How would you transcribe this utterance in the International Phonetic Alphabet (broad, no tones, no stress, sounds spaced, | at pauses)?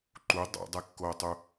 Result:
ǃ u dˤ a̰ dˤ ɛ kː oː tˤ u